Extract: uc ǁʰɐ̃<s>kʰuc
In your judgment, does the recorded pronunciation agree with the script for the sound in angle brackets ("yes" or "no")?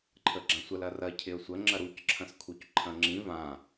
yes